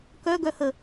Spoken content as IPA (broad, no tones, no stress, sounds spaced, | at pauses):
k œ ɡ œ h ə